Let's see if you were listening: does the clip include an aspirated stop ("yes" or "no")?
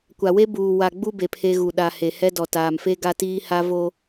yes